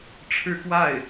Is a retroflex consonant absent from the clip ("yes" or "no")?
no